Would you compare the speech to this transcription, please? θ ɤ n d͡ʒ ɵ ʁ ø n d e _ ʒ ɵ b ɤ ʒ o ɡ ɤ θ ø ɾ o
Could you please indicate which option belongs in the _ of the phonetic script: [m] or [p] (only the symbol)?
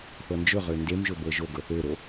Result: m